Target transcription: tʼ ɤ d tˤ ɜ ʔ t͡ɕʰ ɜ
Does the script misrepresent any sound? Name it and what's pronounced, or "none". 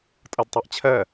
none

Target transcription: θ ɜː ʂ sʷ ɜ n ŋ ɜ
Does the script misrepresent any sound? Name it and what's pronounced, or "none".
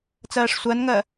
θ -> t͡s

